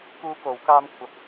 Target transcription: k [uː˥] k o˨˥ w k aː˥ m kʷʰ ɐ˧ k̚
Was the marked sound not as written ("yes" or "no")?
no